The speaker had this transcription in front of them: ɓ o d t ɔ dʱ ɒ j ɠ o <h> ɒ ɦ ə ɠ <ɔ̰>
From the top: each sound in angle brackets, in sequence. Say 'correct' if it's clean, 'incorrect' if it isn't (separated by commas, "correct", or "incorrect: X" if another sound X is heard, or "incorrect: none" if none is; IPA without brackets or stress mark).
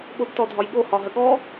correct, incorrect: ɔ